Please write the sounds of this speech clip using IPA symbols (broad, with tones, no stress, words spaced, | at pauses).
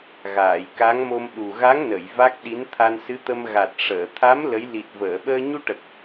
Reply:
ɣaː˨˩˨jka˧˥ŋmo˧m ɗu˨˩ɣa˧˥ŋnə˨˩˨j va˦˥k̚ɗi˧˥n t̪ʰa˧nsɨ˧˥t̪ə˧m ɣa˨˩t̚ ʂəː˨˩˨t̪ʰa˧˥m lə˧˥j li˨˩t̚vəː˨˩˨ɓəː˧ ɲu˧ʈə˨˩k̚